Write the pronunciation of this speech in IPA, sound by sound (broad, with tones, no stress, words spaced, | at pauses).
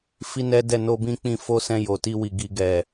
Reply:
fi˦nɛ˦dɛ˦˨ no˧ bĩ˦k͡pĩ˧ fo˦sɛ̃˧ jo˨ti˧wi˨ ɡi˨ɡɛ˨